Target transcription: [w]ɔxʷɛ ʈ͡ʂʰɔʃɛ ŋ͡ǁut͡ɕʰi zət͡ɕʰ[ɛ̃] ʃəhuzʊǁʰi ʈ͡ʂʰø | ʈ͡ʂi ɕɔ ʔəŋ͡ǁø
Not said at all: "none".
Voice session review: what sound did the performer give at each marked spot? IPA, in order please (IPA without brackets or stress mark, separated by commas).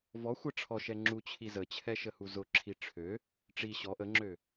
v, ɛ